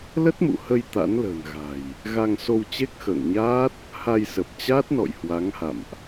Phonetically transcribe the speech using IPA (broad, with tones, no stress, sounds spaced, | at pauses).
l ə˦˥ t̚ m ṵ˧˨ h ə˧ j t̪ a̰˧˥ n l ə̤ː˨˩ n ɣ a̤˨˩ j | ɣ a˧ ŋ s o˧ w t͡ɕ e˦˥ k̚ x ə̰ː˧˨ ŋ ɲ aː˦˥ t̚ | h a˧ j s ə˨˩ p̚ t͡ɕ a˦˥ t̚ n ɔ̰˧˨ j h w a˨˦ ŋ h a̰˧˨ m ʔ